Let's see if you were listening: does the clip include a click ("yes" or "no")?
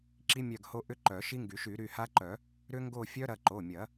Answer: yes